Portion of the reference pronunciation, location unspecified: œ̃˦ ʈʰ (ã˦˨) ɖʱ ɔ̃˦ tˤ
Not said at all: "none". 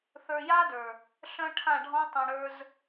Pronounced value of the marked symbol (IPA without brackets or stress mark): ã˦˨